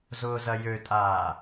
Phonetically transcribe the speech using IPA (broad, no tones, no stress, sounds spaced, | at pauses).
z ʊː z ɐ j ø tʼ aː